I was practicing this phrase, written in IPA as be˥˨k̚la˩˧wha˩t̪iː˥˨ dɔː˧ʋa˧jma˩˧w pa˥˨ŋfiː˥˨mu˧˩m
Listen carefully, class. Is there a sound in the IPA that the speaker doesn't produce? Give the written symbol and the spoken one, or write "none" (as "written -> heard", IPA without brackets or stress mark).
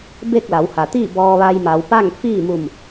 d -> b